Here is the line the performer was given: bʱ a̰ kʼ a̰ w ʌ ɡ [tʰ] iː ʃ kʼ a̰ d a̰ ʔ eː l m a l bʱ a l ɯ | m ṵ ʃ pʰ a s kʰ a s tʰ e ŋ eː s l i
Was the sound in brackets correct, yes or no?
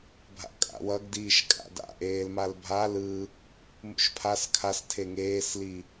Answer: no